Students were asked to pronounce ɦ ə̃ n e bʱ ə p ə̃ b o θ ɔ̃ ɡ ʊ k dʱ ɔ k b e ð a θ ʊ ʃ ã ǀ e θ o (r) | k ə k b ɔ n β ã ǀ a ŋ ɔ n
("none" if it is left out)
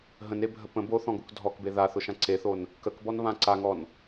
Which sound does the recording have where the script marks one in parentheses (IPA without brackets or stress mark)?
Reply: n